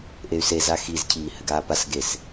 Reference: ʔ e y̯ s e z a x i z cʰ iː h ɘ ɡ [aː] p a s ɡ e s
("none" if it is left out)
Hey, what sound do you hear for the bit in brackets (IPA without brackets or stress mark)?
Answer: aː